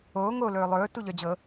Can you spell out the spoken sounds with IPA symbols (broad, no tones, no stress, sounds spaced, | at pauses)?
oː ŋ o l ɵː lˠ ɵː t u ʎ œ d͡ʑ ɤ